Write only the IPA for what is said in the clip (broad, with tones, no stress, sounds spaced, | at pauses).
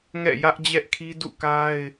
ŋ ɛ̰˦˨ j ä˦ ʔ d͡ʑ ɛ˦ ʔ kʰ i˦ d ṵ˦˨ k a˦ ɪ̯